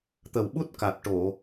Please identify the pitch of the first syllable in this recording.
low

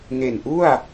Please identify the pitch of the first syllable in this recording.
low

